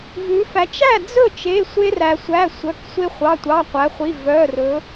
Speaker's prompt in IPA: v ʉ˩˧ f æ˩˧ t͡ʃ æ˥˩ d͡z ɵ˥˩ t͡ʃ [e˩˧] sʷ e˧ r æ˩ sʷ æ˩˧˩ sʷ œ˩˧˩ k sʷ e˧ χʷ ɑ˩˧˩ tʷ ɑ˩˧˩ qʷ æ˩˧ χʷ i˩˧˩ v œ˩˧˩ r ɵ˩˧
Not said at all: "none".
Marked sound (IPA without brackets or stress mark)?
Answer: e˩˧˩